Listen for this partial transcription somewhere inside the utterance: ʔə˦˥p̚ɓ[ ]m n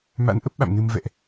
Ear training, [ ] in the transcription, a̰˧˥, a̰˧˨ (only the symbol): a̰˧˨